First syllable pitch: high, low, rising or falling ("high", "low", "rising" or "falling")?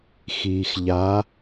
low